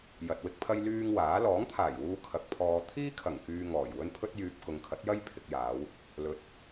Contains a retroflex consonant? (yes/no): no